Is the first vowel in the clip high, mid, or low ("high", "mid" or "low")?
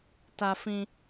low